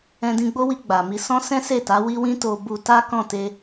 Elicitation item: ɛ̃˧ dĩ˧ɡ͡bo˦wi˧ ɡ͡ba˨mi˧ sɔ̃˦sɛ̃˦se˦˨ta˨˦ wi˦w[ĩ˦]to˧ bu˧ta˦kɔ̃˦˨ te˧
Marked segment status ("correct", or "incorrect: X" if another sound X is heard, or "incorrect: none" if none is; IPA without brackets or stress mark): correct